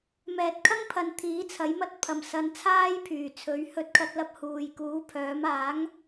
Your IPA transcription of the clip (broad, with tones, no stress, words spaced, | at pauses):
mɛː˨t̚kʰɐ˥ŋpʰɐ˨n t̪ʰiː˨˥t͡sʰɐ˨˥jmɐ˥t̚ pʰɐ˨˩msɐ˨˧n t͡sʰaː˥jpʰyː˨˩t͡sʰɵ˨˥ɥ hɵ˧t̚kʰɐ˧t̚lɐ˧p̚ huː˨jkuː˨˥pʰœː˨˥m aː˨˥ŋ